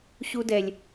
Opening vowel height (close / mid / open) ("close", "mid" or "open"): close